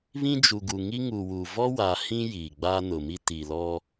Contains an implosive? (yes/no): no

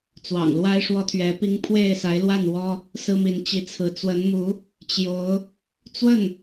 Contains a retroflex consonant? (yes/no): yes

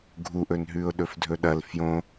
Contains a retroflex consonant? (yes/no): no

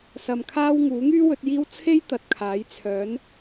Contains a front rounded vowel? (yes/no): yes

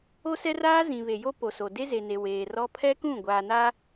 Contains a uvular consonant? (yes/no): no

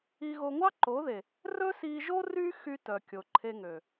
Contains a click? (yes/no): yes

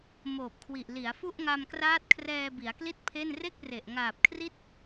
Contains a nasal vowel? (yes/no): no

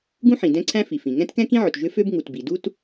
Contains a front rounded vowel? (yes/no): yes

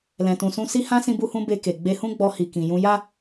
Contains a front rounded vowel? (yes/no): no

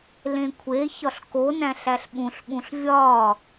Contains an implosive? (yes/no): yes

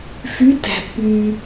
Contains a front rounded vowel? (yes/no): yes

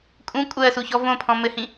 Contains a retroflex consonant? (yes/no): no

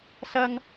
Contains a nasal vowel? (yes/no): no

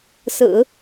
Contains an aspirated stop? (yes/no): no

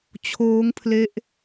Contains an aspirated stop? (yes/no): yes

